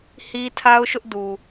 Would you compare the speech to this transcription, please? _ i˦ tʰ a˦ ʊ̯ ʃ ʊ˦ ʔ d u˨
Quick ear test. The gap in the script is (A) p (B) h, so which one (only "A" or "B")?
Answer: B